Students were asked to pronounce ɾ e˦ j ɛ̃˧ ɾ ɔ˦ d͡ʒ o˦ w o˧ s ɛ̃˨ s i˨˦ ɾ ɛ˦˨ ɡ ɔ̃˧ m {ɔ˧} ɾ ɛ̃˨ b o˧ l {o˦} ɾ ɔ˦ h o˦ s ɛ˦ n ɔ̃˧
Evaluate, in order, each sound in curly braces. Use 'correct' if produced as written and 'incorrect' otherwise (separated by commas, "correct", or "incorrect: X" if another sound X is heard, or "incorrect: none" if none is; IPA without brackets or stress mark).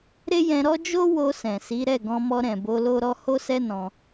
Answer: correct, correct